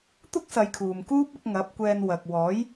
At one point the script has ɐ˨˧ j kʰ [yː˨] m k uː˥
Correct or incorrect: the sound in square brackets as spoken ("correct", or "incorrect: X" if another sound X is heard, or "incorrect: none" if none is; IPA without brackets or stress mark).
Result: incorrect: uː˨